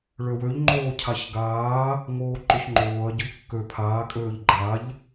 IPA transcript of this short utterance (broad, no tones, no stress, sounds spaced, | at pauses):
ɭ ø w ø ʎ ŋ͡ǃ oː cʰ a ç ɡ aː | ŋ oː ǃ ʊ ç ŋ͡ǃ oː ɐ̯ ɟ ʊ ʎ kː ø pʰ aː kʼ øː ʎ ɡ͡ǃ a ʎ